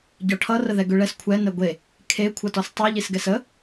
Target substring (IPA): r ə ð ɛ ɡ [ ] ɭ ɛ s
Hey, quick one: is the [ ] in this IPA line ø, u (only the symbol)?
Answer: ø